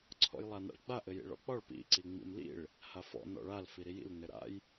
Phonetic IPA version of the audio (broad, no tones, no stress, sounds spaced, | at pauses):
ǀʰ ɔ̰ j lˠ a n a̰ ɭ ɡ͡b a ʔ ɘ j ḭ ɭ ɔ̰ k͡p ɒ ɭ p ḭ ǀ i ŋ͡m ḭ m l ḭ ɭ | h a f ɔ̰ n ɔ̰ ɭ a l f i ɾ i j ḭ l n ɘ ɾ a̰ j